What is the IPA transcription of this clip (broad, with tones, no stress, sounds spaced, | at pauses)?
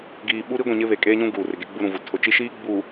ɡ iː˨ ɓ u˦ ɾ i˦ ɡʷ ĩ˨ ɲ ɪ˦ β e˨ kʼ eː˦ ɲ ũ˦ ɡ uː˨ r ɪ˨ ɡ e˦ ɡ͡b u˦ ɾ ũ˨ v u˨ tʰ ʊ˨ t͡ʃ i˦ ʃ iː˦ ɡ͡b u˨